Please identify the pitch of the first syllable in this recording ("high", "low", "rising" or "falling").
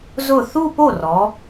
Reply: falling